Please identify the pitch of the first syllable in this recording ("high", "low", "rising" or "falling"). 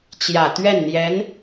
low